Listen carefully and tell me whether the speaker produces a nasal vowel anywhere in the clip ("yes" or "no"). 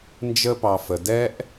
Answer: no